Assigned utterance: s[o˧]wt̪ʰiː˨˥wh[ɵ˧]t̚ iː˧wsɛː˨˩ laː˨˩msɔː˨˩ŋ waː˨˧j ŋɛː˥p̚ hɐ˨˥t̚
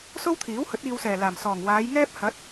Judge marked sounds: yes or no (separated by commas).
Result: no, no